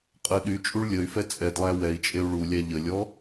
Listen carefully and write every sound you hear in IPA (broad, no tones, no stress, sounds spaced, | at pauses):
qʼ ə ɗ y t͡ʃʼ u ɭ lʲ ə y̯ f ɛ t͡sʼ ɛ d lˠ æ w ɛ i̯ t͡ʃʼ e u̯ ɭ u lʲ æ ʎ ə lʲ ɔ